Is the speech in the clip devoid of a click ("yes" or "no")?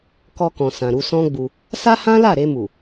yes